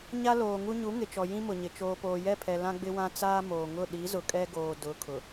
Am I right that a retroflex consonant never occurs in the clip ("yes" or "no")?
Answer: yes